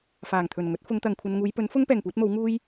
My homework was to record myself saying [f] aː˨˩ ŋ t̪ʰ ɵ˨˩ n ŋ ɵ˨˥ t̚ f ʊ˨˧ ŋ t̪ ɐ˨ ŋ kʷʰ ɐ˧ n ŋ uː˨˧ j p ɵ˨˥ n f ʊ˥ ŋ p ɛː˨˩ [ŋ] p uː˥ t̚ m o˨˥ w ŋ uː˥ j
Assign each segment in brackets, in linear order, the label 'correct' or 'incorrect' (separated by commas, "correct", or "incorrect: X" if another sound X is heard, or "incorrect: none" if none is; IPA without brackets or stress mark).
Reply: correct, correct